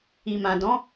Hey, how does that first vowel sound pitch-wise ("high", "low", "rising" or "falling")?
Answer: low